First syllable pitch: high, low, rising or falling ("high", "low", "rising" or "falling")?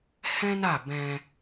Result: high